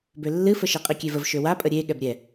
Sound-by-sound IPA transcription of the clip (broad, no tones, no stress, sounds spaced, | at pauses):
b ø lː ɨ f ə ʃ e qʼ i kʲ e v ə v ʃ ø w a pʼ ə ɾʲ e ɠ ɛ b ɾʲ ɛ